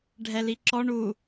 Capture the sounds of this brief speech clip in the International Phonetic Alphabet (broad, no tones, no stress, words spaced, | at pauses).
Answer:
ɖʱɛliǁɔ ɳu